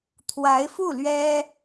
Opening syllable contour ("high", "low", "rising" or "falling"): rising